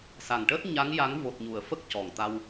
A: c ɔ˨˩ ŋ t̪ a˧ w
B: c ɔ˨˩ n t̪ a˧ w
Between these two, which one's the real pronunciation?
A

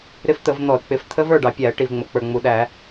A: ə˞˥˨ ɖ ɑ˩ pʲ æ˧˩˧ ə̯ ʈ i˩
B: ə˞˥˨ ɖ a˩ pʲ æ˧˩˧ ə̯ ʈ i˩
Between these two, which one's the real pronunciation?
A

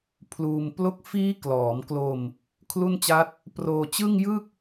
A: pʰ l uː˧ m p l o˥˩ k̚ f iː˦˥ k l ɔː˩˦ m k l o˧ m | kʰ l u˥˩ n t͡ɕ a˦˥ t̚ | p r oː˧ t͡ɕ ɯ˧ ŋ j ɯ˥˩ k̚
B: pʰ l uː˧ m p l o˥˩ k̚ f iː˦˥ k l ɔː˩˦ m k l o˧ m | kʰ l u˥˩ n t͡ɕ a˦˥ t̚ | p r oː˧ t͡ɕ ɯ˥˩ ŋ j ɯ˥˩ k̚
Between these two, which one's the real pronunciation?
B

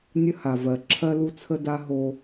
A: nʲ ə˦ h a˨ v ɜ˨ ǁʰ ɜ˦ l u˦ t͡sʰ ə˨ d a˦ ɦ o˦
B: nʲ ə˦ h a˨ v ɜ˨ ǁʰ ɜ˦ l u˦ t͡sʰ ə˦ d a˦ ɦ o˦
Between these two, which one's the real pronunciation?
B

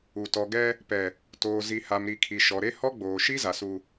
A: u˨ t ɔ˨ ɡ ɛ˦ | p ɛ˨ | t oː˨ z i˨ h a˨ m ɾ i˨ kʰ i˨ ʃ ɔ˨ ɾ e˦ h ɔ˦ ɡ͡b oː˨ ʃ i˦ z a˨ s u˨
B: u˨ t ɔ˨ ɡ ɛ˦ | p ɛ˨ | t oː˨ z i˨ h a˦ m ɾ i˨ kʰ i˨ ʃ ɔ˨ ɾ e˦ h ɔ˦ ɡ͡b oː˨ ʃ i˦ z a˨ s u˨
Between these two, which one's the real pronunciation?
A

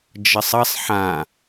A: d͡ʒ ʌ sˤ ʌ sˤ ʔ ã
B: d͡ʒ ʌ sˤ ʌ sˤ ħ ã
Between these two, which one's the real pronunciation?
B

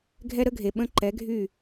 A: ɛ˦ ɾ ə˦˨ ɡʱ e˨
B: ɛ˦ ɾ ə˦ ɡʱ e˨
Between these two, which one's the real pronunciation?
B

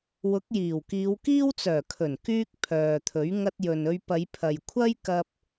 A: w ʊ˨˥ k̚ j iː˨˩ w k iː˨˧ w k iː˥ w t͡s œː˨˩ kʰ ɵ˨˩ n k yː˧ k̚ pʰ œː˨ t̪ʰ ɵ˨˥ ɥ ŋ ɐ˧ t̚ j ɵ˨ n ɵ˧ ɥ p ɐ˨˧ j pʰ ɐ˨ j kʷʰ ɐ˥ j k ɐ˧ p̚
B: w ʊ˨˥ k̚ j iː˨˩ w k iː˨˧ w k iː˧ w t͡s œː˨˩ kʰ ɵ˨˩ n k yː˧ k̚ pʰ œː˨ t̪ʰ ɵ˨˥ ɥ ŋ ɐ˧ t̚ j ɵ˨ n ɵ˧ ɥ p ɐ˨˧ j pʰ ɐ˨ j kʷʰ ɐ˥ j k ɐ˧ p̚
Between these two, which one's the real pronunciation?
A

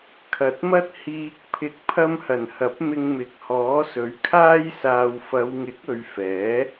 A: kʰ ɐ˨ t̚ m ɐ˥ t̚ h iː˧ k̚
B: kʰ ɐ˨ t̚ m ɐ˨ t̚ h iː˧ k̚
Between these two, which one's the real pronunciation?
A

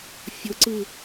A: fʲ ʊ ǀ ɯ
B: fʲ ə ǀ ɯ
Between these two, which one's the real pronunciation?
A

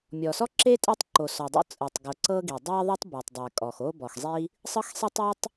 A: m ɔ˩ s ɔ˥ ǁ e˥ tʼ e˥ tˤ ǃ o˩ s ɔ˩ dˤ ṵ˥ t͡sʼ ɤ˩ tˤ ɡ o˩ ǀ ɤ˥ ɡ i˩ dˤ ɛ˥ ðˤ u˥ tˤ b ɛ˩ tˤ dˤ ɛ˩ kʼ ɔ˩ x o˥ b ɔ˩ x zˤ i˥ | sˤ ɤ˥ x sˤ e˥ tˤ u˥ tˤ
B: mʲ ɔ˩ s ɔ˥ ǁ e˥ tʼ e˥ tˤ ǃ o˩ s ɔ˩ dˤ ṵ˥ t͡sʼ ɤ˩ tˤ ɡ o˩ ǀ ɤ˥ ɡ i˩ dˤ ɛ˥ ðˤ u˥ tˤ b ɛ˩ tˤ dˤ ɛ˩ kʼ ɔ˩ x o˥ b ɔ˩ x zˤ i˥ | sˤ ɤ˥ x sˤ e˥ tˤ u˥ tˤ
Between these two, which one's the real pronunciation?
B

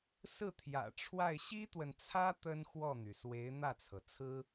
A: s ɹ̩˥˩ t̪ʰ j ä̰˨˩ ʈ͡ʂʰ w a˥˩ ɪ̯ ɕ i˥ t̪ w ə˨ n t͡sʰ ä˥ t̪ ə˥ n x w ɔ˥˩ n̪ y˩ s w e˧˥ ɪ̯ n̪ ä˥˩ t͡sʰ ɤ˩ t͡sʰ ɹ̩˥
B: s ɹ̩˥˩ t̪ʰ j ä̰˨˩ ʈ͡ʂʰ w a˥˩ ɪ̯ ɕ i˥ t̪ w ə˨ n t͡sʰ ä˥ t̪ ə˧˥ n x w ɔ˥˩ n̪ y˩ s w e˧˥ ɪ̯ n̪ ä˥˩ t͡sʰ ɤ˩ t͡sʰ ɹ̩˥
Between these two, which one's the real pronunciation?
A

